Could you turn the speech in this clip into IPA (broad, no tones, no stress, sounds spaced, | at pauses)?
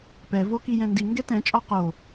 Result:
p ɛ v o k i j ɛ̃ n d i ŋ ɡ ɛ t ɛ̃ t͡ʃʼ ɔ q o